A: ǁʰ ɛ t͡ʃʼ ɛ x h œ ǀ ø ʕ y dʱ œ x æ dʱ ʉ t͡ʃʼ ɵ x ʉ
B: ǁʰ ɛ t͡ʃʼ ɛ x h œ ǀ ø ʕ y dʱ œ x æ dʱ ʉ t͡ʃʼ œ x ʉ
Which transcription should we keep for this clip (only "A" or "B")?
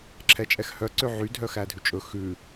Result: A